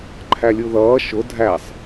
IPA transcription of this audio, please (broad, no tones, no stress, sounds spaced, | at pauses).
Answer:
ǃʰ æ lʲ u ð ʌː ʃ ʊ dʱ æ sˤ